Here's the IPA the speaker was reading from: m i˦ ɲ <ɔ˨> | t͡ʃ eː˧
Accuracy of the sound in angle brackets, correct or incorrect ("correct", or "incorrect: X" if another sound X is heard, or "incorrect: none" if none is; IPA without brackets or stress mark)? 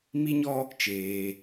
incorrect: ɔ˦